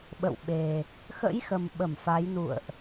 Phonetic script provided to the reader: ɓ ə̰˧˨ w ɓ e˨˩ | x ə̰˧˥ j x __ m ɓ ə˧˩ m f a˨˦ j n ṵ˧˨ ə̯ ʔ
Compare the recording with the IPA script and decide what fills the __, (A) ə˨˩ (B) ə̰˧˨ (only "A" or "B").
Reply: A